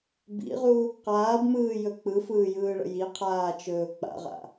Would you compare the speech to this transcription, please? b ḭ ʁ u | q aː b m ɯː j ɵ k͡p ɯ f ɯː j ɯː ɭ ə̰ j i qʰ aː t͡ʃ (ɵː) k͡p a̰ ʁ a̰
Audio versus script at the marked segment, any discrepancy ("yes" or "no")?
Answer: no